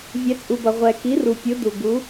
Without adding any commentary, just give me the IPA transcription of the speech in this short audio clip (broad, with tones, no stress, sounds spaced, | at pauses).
vʲ ɛ˨˦ t͡sʼ u˨ b ʌ˨ ʁʷ ɛ˨ k i˨˦ r u˨ pʲ ɯ˨˦ d u˨ ɡ u˨˦